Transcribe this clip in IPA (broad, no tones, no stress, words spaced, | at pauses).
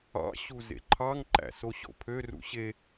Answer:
ɑ̰ ɕuzḛǃʰɑŋ ǃæ̰soɕo̰pʰø rṵɕe